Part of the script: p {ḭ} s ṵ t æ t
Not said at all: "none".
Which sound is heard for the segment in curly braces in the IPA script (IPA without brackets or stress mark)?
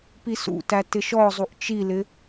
i